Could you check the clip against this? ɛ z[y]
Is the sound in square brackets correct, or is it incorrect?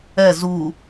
incorrect